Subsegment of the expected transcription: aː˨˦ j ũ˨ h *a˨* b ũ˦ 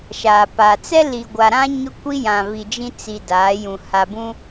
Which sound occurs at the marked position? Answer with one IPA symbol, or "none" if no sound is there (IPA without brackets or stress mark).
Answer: a˨